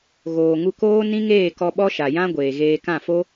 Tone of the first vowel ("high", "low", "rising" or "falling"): low